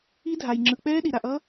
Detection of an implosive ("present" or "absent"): present